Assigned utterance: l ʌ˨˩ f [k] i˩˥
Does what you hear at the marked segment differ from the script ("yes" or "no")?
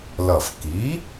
no